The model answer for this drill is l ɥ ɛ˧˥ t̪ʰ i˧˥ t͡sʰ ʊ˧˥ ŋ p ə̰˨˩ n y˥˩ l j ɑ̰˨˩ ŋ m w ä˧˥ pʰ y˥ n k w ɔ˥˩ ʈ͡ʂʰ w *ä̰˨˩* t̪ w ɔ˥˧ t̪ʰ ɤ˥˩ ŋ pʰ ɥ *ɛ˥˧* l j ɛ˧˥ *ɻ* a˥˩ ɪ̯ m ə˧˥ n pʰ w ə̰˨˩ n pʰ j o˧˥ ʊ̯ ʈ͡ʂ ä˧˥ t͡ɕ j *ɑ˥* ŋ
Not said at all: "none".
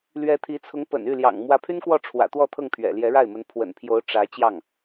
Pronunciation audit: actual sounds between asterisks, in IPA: ä̰˨˩, ɛ̰˨˩, ɻ, ɑ˥˩

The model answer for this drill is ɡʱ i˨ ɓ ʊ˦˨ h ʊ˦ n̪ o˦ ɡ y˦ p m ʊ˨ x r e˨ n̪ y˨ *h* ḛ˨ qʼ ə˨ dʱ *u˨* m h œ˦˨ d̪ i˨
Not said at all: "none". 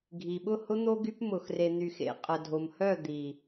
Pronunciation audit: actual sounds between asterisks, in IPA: x, o˨

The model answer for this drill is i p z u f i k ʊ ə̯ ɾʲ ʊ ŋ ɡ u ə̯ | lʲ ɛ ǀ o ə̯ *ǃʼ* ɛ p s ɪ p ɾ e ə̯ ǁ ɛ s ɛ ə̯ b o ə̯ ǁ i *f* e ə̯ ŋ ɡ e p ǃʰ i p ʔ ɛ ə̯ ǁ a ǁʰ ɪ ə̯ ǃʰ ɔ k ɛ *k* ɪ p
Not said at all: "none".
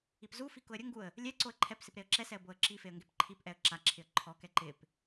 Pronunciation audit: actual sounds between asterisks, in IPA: ǃʰ, f, ǃ

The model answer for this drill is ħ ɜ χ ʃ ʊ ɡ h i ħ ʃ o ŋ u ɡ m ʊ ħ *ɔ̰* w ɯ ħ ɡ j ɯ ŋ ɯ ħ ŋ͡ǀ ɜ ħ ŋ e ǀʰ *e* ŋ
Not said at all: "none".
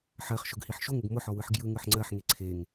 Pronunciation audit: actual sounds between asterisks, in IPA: ɔ, e

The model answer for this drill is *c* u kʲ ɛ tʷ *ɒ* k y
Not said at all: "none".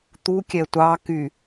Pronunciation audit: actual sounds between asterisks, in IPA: t̪, ɑ

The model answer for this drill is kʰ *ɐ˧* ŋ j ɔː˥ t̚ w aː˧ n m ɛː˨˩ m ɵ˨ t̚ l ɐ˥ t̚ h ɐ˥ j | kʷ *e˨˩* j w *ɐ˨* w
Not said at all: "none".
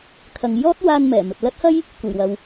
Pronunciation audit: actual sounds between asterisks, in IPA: ɐ˨, e˨˩, ɐ˨

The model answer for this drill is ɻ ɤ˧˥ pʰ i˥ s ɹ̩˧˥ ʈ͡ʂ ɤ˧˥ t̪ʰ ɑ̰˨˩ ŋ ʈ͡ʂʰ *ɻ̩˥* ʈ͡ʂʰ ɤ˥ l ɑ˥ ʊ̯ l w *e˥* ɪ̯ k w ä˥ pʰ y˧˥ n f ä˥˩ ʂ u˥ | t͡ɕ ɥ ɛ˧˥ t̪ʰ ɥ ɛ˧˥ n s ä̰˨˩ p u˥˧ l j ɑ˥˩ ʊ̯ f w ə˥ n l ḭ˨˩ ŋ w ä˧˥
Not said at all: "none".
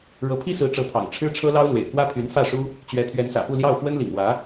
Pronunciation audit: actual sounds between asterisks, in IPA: ɻ̩˥, ḛ˨˩

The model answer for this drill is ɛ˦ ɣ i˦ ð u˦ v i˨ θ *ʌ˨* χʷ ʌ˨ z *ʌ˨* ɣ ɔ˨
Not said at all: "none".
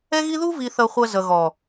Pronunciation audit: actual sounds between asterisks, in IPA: ʌ˨, ʌ˨

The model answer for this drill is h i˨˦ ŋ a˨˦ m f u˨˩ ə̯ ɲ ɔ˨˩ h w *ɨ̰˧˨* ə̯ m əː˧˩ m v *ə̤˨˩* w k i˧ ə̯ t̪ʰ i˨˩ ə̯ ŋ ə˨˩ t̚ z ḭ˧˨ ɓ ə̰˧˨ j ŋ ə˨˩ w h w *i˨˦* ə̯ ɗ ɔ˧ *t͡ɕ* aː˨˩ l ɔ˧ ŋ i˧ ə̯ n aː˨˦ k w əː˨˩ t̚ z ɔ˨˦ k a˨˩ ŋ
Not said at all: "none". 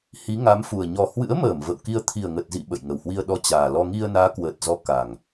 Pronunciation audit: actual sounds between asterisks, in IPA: ɨ̰˧˥, ə̰˧˨, i˧, t͡ɕ

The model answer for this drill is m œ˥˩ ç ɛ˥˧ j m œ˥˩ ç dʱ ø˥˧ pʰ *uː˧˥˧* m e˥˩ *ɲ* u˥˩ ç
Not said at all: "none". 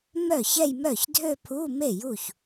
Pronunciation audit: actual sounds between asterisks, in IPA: u˧˥˧, j

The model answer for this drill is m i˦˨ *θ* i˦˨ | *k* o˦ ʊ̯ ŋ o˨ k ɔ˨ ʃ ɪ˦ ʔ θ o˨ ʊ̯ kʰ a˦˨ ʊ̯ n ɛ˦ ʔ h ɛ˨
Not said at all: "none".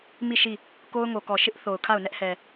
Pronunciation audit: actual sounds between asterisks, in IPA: ʃ, k

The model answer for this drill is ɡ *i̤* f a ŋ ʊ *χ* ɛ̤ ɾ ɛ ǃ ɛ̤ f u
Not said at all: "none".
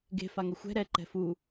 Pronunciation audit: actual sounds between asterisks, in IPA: e̤, xʷ

